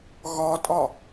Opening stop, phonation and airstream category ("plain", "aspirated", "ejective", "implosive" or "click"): ejective